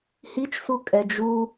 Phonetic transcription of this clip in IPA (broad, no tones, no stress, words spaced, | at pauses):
hit͡ʃsu kʼɛd͡ʒu